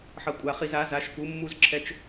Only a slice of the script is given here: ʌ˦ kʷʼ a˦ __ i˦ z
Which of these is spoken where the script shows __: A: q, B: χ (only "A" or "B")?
B